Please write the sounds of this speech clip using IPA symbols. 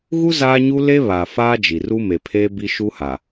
ɣu˦ zaː˦ɲu˦ le˦βa˨ faː˦d͡ʒi˨ ru˦me˨pʰeː˦ bi˦ʃu˦ha˨

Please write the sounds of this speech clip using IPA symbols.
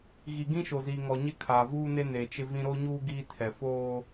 ɣi˨ɡĩ˦ʃo˨ziː˨ ŋɔ˨ɲɪ˦ kʰaː˨vuː˦ne˦ ne˨t͡ʃɪ˦vĩ˦ ɾo˦ɲuː˦ ɡiː˦tʰɛ˨ foː˦

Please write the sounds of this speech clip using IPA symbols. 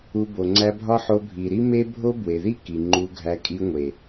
u˧ bo˨ŋ͡ǀæ˧bʱɒ˦ ħo˧bʱi˨ ɾi˦me˦bʱo˦ bwe˨ði˦ ki˨ŋ͡ǃu˧ɡʱæ˧ kʼi˧ŋʷe˨

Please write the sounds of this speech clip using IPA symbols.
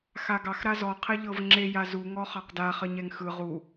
xaɡɑx ɾazɔ qʰɛʎɤv ŋ͡ǁe jazu ŋɔχɑqda χəɲɛŋxɯ ʁu

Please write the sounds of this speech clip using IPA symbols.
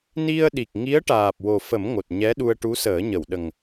ni˧ə̯ɗi˨˩k̚ŋi˧˥ə̯ ʈaː˨˩p̚wo˨˩fə˨˩˦m ŋo˨˩t̚ɲɛ˧˥ɗu˧ə̯ ʈu˧˥səː˨˩˦ɲə˨˩˨wɗə˨˩ŋ

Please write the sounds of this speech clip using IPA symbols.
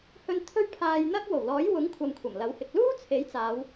hɵ˧n t̪ʰɵ˥ɥpʰaː˧jn̪ɐ˥k̚ wo˨˩wlɔː˨˥j wʊ˨˥ŋ kʷʰɐ˧mkʷʰɐ˨˩mlɐ˨˥whɪ˨k̚ luː˥ t͡sʰe˨˥jt͡saː˨˧w

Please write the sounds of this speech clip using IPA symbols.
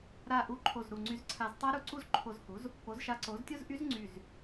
ɾa˧˩ʔu˧˩ ǃʰo˧˩zɾu˧˩ŋ͡ǀy˧zǀʰa˧z tˤa˦˥ ɾu˧ǀu˥˧z ǃʰo˧zhu˩˥z | po˩˥zʃa˧˩ǀo˩˥z tʲo˥˧zʔy˦˥z ŋ͡ǀy˧˩z

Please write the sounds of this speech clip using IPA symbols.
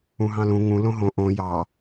ũɦɑ̃lũ ŋũ lõɦõ ʔõ jɑ

